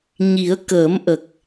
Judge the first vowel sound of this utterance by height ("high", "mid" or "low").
high